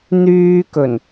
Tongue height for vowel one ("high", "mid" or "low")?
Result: high